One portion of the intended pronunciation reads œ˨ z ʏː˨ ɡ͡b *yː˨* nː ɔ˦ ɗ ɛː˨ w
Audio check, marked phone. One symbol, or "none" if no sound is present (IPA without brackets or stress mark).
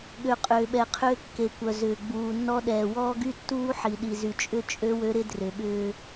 uː˨